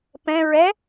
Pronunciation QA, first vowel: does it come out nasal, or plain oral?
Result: nasal